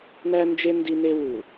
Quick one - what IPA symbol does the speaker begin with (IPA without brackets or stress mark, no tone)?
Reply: n̪